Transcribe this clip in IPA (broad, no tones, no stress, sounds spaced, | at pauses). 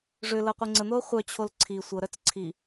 ʐ ʏ l ɤ qʷ e ŋ͡ǀ ə n̪ oː χʷ œ t͡ɕʰ o l ǀʰ i sʷ ɤ ɾ œ t͡s ǀʰ i